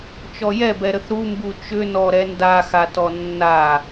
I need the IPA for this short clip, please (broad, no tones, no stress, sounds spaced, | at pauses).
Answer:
t͡ʃ ɔ j ɛ b ɛ ɾ ə θ ɾ u m b u t͡ʃ ʏ n ɔ ɾ ɛ n d a x a t ɔ nː a